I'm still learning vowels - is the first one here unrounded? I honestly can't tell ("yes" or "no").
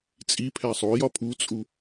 yes